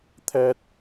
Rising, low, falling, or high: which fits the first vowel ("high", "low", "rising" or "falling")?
high